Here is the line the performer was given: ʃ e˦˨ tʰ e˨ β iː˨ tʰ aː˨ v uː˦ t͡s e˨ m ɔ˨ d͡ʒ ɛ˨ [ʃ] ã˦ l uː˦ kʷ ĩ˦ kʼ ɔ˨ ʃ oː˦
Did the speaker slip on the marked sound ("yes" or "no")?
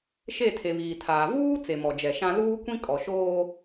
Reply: no